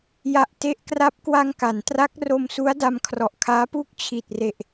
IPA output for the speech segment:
j a˨˩ ʔ t e˦˥ ʔ k r a˦˥ p̚ k w a˧ ŋ k a˩˦ n t r a˦˥ k̚ r o˧ m s u˦˥ a̯ d a˧ m kʰ r ɔ˨˩ ʔ kʰ aː˦˥ p uː˥˩ k̚ t͡ɕʰ i˨˩ t̚ r e˨˩ ʔ

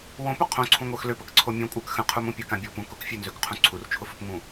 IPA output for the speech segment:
w õ p ʊ qʰ õ ǀʰ ũ ŋʷ ə˞ x l ø p ə k ǀʰ o mʲ ũ kʷʼ ə˞ k x ə̃ qʰ u m ũ pʲ ə k ã bʲ o p ũ k ʊ k fʲ ø n z ø k qʰ ũ ǀʰ u r t͡ʃʰ ʊ f ʊ p ŋ ũ

